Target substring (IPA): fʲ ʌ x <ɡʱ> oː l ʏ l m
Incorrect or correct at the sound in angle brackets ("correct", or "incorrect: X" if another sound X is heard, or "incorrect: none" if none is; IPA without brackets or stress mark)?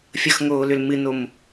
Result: incorrect: ŋ